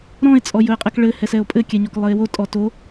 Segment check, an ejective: present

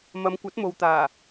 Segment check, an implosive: absent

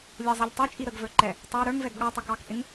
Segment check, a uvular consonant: absent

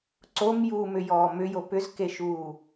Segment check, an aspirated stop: absent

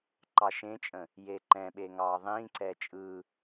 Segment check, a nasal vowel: present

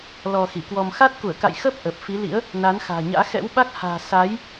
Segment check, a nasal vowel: absent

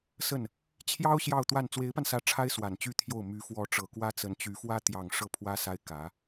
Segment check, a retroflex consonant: present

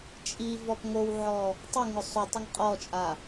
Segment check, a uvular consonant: present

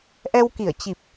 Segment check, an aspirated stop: absent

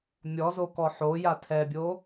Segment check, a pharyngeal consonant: present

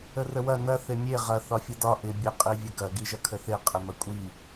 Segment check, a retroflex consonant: absent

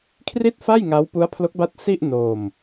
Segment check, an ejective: absent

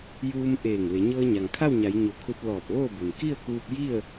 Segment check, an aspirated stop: present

